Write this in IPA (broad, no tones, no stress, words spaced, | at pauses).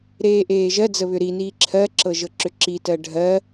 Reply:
ɾeːʔeːʒɜd͡zə βʏɾiniː ǁʰɜǁɤ ʒɤǁʏǁitɜ ɖʱɜ